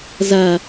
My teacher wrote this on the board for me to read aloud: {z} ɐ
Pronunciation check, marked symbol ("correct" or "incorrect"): correct